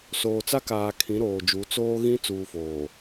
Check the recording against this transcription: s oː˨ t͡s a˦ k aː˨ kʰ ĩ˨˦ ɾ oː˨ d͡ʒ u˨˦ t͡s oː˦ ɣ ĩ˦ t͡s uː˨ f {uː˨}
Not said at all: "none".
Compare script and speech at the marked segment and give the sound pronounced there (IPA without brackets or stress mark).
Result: oː˨